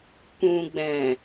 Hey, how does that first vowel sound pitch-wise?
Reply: low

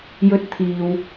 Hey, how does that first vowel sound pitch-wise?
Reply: high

